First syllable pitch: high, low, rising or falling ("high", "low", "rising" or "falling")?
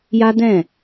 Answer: high